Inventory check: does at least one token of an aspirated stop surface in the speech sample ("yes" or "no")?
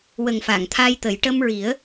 yes